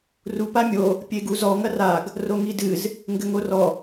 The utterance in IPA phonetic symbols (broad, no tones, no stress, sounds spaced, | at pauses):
r u p a mʲ o | pʲ e ɡ u z ɔ ŋ ɐ r a ɡ | r o ŋ i d ɨ z | ŋ ɡ ɘ ŋ o r ɔ